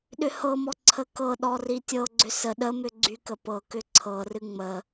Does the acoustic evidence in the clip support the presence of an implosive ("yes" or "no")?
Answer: yes